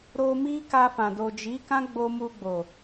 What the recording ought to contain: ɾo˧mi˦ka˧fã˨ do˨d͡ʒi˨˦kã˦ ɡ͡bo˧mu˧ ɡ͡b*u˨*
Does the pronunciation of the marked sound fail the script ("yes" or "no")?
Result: yes